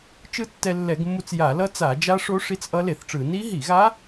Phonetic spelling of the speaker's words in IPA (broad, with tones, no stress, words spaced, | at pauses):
t͡ʃɯ˦˥tːɛ˧lːɛ˧˩˧ɡmːu˧t͡s ja˧˩˧lʌ˦˥t͡sa˧˩˧ d͡ʒa˦˥ʂo˦˥ ʂi˦˥t͡sʔʌ˦˥le˧˩˧θʈ͡ʂɯ˧˩˧ ni˦˥ɦi˧˩˧ɣa˦˥